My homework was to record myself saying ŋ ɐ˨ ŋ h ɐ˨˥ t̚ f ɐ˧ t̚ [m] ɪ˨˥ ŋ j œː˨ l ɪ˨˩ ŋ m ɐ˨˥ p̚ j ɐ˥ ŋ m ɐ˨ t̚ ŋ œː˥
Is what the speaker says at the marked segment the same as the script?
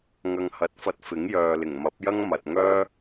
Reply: no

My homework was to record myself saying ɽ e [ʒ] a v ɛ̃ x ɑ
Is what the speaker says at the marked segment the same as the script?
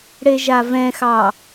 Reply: yes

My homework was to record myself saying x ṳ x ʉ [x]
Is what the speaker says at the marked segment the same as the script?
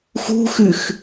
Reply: yes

